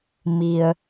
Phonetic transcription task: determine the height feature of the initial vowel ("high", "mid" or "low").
high